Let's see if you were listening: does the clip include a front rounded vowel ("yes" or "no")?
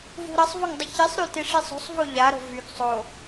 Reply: yes